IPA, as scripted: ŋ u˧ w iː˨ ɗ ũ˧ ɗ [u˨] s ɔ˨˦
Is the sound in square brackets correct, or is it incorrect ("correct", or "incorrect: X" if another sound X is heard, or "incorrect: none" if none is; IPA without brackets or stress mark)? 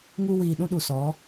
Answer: correct